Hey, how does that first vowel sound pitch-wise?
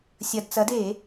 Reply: low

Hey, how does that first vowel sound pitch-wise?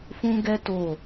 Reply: high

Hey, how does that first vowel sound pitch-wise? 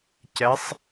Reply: rising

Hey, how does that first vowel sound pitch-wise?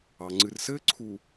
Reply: low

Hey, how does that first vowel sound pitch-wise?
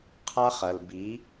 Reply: high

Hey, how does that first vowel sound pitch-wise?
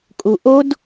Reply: low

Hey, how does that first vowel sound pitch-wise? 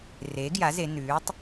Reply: rising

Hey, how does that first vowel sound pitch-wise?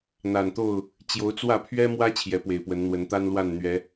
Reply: low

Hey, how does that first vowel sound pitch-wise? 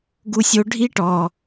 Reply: high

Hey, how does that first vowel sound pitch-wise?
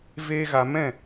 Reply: high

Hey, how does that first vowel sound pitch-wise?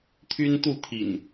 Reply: high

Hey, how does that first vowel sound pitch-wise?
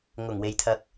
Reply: low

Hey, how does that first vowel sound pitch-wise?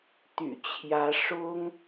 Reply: low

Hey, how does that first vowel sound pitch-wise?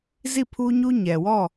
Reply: falling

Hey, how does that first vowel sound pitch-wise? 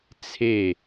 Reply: falling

